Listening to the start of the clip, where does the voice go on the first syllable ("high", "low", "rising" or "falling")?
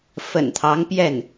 low